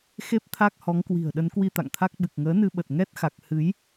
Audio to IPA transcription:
x e˦˥ p̚ t̪ʰ a˦˥ k̚ h ɔ˨˦ ŋ k w i̤˨˩ ə̯ ɗ ə˨˦ n k w i˧ t̪ a̰˧˨ ŋ t̪ʰ a˦˥ k̚ ɓ ɨ˨˩ k̚ ŋ əː˨˦ n ɨ˧ ɓ ə˨˩ t̚ ŋ ɛ˦˥ t̚ x a˨˩ k̚ h ɨ˨˦ j

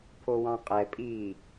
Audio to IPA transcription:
pʰ o w ɑ̃ qʼ ɛ pʼ iː

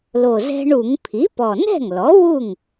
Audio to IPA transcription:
l o˨˩ z ɛ̤˦ ɳ u˧˩˧ ŋ pʰ i˩˥ p ɔ˨˩ n ɛ̤˥˩ ŋ l ɔ˩˥ w u˥˩ ŋ

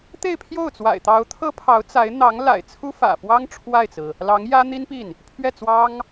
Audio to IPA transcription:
t̪ e˥˧ ɪ̯ pʰ j o˥˩ ʊ̯ t͡s w a̰˨˩ ɪ̯ t̪ ɑ˧˥ ʊ̯ t̪ʰ ɤ˥ pʰ ɑ˧˥ ʊ̯ t͡s a˧˥ ɪ̯ n̪ ɑ˧˥ ŋ l a̰˨˩ ɪ̯ t͡sʰ u˥ f ä̰˨˩ f w ɑ˥ ŋ ʈ͡ʂʰ w a˥˩ ɪ̯ t͡s ɹ̩˩ | l ɑ˧˥ ŋ j ä˥ n̪ i˥ n p i˥˩ n | pʰ ɥ ɛ˥˩ t͡s w ɑ˥ ŋ

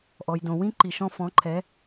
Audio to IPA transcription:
ʔ ɔ˩ j d õ˩ w ĩ˥ ǃ i˩ ʃ ɔ̃˧ f ɔ̃˩˥ ǃʰ ɛ˩˥

